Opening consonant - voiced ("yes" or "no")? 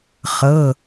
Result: no